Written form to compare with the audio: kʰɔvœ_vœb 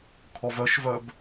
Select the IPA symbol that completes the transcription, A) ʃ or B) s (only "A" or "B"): A